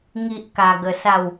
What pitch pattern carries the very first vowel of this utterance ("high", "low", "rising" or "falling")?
high